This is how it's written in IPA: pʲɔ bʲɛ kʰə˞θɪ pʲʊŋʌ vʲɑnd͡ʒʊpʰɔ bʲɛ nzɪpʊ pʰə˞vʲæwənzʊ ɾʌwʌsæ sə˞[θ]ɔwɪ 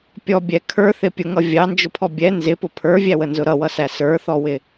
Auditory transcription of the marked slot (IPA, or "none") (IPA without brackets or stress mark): θ